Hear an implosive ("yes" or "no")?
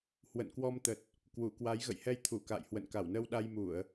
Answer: yes